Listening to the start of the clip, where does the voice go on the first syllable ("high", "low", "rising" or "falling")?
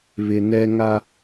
low